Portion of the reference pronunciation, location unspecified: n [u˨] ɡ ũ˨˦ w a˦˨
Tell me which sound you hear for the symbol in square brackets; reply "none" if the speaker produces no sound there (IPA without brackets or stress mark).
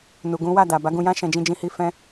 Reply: u˨